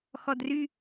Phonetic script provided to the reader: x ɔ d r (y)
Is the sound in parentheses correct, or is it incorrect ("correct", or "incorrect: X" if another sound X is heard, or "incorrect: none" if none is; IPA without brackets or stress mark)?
correct